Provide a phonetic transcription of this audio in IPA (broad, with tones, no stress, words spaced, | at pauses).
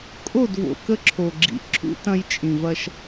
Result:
kʼo˦˨d vo̰˨kə˦ǁʰo˨ɡ͡ǁḭ˨ ǁʰṵ˦tɐ̃˦j t͡ʃʼĩ˨vɐ˦ʃ